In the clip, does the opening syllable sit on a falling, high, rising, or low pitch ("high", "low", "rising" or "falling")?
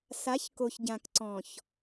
rising